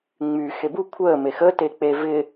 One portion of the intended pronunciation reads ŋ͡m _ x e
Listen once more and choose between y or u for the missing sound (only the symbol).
y